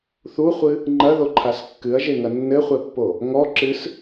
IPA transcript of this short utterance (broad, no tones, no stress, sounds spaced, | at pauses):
θ u χʷ ɨ | ŋ͡ǃ ɐ ð o ǃʰ a s kː ɨ ɐ̯ ʒ e ŋ ɐ nː ɘ χʷ ɛ pː o | ŋ ɔ ǁ ɨ s